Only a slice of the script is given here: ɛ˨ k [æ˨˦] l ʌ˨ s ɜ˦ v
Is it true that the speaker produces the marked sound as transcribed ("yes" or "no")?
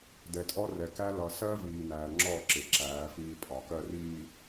no